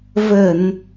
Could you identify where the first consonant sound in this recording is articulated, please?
labial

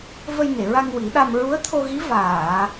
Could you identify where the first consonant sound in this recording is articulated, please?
labial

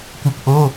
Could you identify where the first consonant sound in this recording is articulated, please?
velar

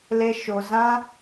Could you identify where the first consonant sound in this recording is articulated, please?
alveolar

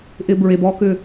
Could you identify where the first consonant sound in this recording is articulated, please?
glottal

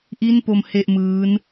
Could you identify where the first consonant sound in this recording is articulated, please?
glottal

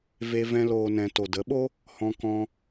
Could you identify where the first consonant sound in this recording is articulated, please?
labial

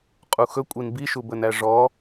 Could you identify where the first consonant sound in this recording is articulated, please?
uvular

